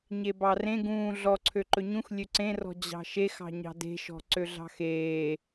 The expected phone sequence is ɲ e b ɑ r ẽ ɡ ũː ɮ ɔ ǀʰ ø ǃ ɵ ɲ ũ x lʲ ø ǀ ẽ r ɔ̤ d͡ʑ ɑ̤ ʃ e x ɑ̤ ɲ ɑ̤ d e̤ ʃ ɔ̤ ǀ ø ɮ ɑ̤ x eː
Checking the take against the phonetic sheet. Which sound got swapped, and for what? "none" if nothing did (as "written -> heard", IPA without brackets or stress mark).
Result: none